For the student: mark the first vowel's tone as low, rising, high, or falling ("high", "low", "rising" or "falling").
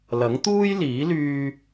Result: rising